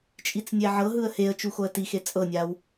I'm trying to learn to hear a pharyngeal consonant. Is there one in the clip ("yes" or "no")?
yes